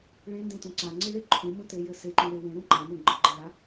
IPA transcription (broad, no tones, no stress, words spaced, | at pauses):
ɭẽndẽtũ ǀaŋ͡ǀɨɭe ǃʰũmũtejɘ seǃũwe wẽɾũ ǃamũ ɡ͡ǃɨɡ͡ǃẽɭa